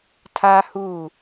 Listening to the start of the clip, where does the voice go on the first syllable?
high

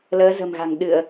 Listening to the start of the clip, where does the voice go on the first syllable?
rising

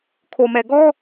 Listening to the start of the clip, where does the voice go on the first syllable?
low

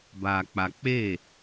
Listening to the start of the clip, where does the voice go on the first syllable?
low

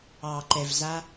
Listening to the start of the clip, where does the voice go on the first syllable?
low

